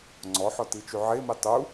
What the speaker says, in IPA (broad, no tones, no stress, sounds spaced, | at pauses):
ŋ͡ǀ ɔ ħ ɔ t i t͡ʃ y ʕ e m i tˤ u